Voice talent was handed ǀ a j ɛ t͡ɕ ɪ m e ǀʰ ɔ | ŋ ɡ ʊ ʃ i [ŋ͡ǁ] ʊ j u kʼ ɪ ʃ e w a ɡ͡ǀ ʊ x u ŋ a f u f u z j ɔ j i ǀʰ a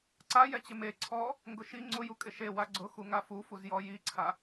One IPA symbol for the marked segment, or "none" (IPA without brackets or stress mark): ŋ͡ǀ